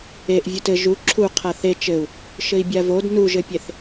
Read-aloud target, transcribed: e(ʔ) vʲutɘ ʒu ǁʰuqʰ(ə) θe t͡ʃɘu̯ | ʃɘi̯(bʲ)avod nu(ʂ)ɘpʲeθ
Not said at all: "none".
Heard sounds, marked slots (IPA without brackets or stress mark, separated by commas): ʔ, a, bʲ, ʒ